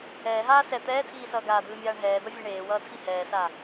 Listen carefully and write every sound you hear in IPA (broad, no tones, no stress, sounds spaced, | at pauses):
ɛː ɦ aː s ɛ t̪ ɛː tʰ iː s ʌː ɡ aː d̪ ɯː mʲ aː ɳ ɦ ɛː d̪ ʌ vʲ e ɳ eː w ʌː tʰ i h ɛː s a